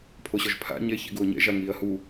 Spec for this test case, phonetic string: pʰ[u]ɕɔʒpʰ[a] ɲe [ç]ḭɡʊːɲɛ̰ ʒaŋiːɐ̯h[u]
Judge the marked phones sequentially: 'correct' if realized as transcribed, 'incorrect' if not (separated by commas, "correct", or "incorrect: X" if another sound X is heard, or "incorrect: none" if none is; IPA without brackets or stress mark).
incorrect: o, incorrect: a̰, correct, correct